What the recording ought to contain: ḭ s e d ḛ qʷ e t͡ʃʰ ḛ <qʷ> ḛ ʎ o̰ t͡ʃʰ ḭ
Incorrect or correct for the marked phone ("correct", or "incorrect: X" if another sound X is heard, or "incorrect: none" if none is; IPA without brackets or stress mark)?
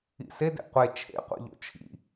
correct